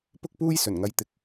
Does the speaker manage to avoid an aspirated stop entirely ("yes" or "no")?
yes